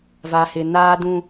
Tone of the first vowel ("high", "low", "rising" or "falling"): low